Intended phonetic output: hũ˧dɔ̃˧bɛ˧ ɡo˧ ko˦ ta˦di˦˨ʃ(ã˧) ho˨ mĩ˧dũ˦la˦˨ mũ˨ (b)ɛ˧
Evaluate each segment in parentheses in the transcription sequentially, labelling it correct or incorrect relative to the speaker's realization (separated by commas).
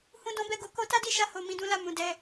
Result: incorrect, incorrect